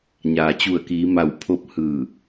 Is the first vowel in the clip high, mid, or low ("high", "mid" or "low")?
low